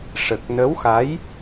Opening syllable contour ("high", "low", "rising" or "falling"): low